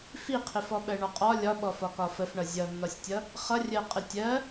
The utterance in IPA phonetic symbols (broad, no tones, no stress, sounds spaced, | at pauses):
f i qʰ ɪ f ɔ ɓ ɜ ɳ ɒ qʼ ɒ lʲ ɒ ɓ ɔ f ɒ k ɒ f ə f ɳ ʌ zʲ ʌ nː ɒ sʲ tʲ ʌ | χ ʌ rʲ ɜ qʼ ɪ tʲ ɜ